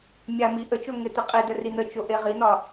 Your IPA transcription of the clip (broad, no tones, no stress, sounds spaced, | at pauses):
mʲ a m i ʔ ə t͡ʃ o ŋ e t̪ i qʼ i d ə r i n̪ ə t͡ʃ o ʔ e ʁ i n̪ ɒ